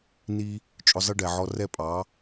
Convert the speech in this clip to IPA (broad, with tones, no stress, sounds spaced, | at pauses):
n i˦ | t͡ʃʼ ʊ˧ zˤ ɪ˦ ɖ ɛ˨ ʕ ɔ˧ r ɛ˦˨ pʼ ɑ˨˦